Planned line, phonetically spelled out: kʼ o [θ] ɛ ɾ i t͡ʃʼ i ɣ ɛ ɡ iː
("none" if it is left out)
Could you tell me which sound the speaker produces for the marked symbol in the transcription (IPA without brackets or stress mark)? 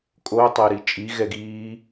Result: tˤ